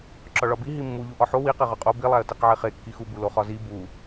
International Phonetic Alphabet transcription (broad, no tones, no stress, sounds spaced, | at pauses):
ǁ ɒ ɭ ɒ b i ɦ i mː u ʎ u ʔ ɒ ħ o w i q e ʁ ɒ qʼ o b i lˠ æ ə̯ t i q ʕ e χ e kː i x u b u l o χ ɒ z i b u